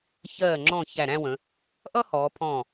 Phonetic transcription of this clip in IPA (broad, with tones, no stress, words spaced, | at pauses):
çɜː˧˩ŋ͡ǁɔ̃˧˩ çæ˧˩ɾæ̃˥˧wə̃˩˧ | ʔʌ˥hɔː˩˧pʰɔ̃ː˧˩